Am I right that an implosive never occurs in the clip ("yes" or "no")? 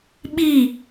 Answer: no